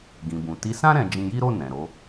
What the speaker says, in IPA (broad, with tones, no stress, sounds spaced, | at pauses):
ɡ ĩ˨ b ũ˨ t i˨˦ s ã˦ ɾ ɛ̃˧ d͡ʒ ĩ˧ j i˦ ɾ o˦˨ n ɛ̃˨ ɾ o˨˦